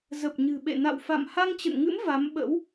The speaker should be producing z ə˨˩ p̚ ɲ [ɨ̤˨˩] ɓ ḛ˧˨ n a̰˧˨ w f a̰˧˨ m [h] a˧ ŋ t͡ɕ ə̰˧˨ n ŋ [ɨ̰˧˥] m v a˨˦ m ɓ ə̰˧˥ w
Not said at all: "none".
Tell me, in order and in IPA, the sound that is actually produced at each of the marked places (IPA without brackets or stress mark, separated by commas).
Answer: ɨ̤˨˩, h, ɨ̰˧˥